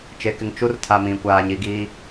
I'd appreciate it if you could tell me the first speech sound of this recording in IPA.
t͡ʃ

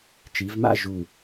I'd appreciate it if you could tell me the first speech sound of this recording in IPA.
t͡ʃ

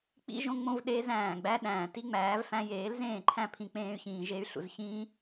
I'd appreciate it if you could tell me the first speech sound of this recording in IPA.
k͡p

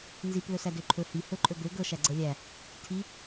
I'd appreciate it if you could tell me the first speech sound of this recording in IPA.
n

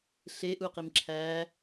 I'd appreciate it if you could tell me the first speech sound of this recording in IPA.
ɬ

